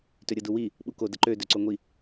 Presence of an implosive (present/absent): present